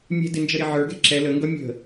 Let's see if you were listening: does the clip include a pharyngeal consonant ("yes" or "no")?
yes